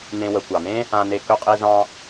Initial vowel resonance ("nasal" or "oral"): nasal